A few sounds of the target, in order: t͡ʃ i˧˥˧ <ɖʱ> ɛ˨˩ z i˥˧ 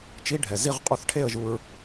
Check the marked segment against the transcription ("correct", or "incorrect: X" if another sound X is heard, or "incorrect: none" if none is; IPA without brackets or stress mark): correct